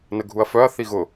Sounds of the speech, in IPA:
n ə ɡʱ u ɐ̯ f œ ɐ̯ θ i ɣ ʊ

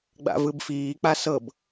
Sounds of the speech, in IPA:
ɡ͡b a̰ v ɯ b f iː k͡p a s ɤ b

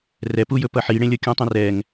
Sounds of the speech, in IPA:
r ɛ p u j ɵ p ʌ ħ i ɽ ẽ lʲ ʌ kʲ ũ tˤ ũ r ɛ ŋ

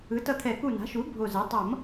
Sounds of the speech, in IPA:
ɯ˩˥ t ʌ˧˩ t̪ʰ ɛ˨˩˦ k u˧˩ n a̤˩˥ ʃ u˩˥ bʱ o˧˩ z ɛ˩˥ tˤ ʌ˨˩˦ m

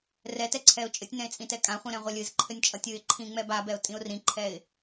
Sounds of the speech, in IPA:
r ɛ t ɛ ǀʰ ɛ ʊ̯ t͡ʃʼ ɘ tʲ n ɛ̃ ɪ̯ t͡sʼ ĩ t ɛ kʼ ã χʷ ĩ ɾ ɛ̃ ʁʷ ʌ lʲ ɨ z ǃʰ ɘ nʲ t͡ʃʼ ʌ tʲ ɨ ɪ̯ ǃʰ ĩ ŋ͡m ɛ b a b ɛ ʊ̯ tʼ ĩ ʊ̯ r ĩ ǃʰ ɛ ɪ̯

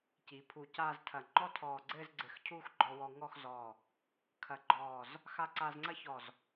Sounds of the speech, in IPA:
c i˩˧ pʰ u˧˩ c aː˥˧ z tʰ ɐ˧˩ ŋ͡ǃ ɔ˥ tʰ ɔː˧˩ ɡ͡ǀ ɘː˥˧ z ɡ͡ǀ ɘ˧˩ x cʰ uː˥˧ x ɡ͡ǃ ɔ˧ w ɔ˧ ŋ ɔː˥˧ x z ɔː˧˩ | kʰ ɐ˧˩ ɡ͡ǃ ɔː˧˩ z | x a˧ ǀ aː˧ z ŋ͡ǀ ɐ˥ ç ɔ˧˩ z

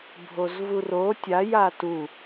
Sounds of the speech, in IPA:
bʱ o z v u r o tʲ a j a t u

